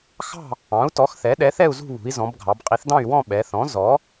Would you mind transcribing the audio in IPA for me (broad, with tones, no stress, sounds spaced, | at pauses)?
x ɑ̤˥˨ | ɑ̃˩˥ u̯ t ɔ˩˥ x θ ɛ˩˥ ɗ ɛ˩˥ θ ɛ˥˨ u̯ z ṳ˥˨ β ṳ˩˧ i̯ z ɔ̃˩˧ b ɡʱ ɑ˩˧ b qʼ i˩˥ θ d ɑ̃˥˨ y̯ w ɔ̃˥˨ ɓ ɛ˩˧ θ ɔ̃˩˥ z ɔ˩˥